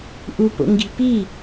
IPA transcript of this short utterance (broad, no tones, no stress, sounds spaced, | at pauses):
ʔ u p o̰ ŋ ɡ i̤ p i